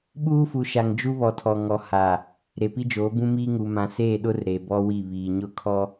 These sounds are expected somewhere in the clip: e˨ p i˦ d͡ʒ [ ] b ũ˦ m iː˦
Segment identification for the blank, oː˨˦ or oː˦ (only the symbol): oː˨˦